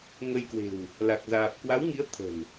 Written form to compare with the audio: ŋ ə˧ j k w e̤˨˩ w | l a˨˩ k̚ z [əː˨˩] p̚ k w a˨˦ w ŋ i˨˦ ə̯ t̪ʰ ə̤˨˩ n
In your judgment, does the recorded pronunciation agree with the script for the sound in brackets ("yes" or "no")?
no